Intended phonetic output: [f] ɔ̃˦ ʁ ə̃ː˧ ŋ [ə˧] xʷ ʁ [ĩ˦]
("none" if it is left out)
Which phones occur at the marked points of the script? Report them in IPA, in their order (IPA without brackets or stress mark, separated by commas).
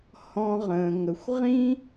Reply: h, ə˧, ĩ˦